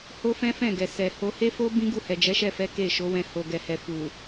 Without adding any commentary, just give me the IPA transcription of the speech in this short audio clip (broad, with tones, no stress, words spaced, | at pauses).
ho˦fɛ̃˦fɛ̃˦˨ɡɛ˨ sɛ˨ho˧ he˦fo˦ bĩ˦ɡu˦˨hɛ˨d͡ʒɛ˨˦ ʃɛ˦˨fɛ˨˦ ke˦˨ʃo˨˦wɛ̃˧ ho˨ɡɛ˨hɛ˨fu˨